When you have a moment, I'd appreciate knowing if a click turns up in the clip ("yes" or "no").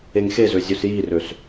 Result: no